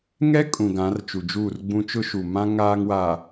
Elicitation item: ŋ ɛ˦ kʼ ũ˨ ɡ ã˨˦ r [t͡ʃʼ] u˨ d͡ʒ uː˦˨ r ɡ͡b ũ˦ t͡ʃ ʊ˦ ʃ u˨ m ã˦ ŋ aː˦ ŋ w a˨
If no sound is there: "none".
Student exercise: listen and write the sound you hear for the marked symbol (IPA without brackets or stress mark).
t͡ʃ